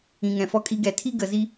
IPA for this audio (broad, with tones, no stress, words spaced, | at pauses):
ĩ˩ŋɛ̃˩fɔ˧ kʼi˧ɡɛ˩ tʰi˥ɡə˩zi˧